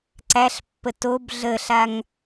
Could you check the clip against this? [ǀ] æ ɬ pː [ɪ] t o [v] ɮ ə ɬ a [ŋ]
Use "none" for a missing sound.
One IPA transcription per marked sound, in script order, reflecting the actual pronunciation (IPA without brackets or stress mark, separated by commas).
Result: ǀ, ə, b, ŋ